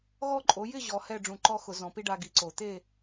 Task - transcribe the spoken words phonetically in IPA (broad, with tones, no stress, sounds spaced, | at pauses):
ɣ ɔ˥˨ ǃʼ o˩˥ j ɪ˥˨ ʑ ɔ˨ h ɛ˥˨ ɖ͡ʐ ũ˨˩˦ ǃ ɔ˦ x ʊ˨˩˦ z ɔ̃˩˥ p i˦ ɖ a˦ ɡ i˩˥ ǀ o˨˩˦ t̪ e˥˨